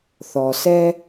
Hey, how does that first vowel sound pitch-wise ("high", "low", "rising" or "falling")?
low